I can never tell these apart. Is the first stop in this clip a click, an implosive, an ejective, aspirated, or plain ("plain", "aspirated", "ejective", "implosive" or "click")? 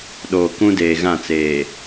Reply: implosive